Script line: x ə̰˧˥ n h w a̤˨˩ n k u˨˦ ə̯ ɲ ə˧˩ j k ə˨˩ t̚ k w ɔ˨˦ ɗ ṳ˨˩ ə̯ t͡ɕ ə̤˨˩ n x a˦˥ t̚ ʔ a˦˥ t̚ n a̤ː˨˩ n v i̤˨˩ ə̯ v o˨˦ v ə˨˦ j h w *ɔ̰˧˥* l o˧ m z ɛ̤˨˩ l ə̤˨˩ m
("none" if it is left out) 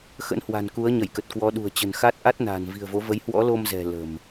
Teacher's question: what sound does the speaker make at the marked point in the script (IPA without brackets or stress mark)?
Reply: ɔ̰˧˥